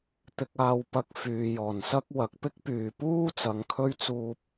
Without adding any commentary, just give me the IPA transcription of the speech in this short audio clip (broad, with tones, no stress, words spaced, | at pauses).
t̪ɪ˧k̚aː˧wpɐ˧k̚ fyː˨jɔː˨˩nsɐ˥k̚ wɐ˨k̚pɪ˥k̚pyː˨puː˥ t͡sɐ˨˧ŋkʰɵ˥ɥ t͡suː˧p̚